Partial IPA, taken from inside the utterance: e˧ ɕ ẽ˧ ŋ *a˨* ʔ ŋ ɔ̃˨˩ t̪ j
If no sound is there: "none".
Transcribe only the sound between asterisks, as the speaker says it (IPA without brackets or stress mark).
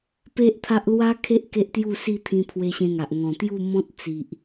a˨